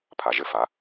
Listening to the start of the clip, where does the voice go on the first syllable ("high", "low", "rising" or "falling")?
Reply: low